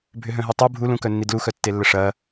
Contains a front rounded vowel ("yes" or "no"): yes